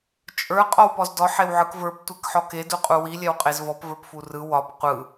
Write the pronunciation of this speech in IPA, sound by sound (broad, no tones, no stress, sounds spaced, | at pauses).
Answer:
t͡ʃʼ ə˞ qʼ ɔ w p ɔ z d ɔ ħ e w ʕ ɯ k v ə˞ p tʷ ɛ k ħ ɔ k e d u qʼ u w i lʲ ɛ w qʼ e z v ɔ p v ə˞ p f u r ɯ w ɒ p qʷ ɯ